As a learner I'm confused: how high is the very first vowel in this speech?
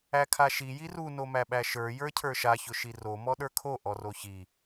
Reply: low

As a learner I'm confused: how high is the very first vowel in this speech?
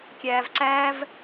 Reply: low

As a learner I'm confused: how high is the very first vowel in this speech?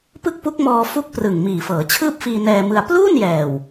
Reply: high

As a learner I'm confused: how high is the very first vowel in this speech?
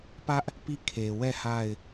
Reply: low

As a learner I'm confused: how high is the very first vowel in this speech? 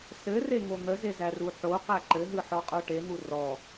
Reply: mid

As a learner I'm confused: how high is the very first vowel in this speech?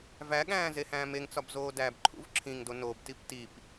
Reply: low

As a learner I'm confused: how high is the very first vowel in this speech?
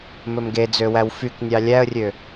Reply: mid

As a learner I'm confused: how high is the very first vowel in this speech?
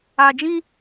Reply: low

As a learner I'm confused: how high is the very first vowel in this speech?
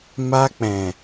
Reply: low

